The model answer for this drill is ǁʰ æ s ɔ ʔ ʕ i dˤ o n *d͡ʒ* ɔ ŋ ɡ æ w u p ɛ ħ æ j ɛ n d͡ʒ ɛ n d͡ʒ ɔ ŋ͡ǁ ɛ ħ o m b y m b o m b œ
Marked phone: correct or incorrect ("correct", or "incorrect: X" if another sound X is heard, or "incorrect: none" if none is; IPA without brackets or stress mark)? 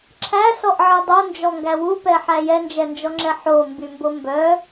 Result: correct